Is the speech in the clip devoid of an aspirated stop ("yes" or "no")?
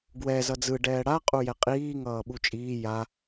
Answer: yes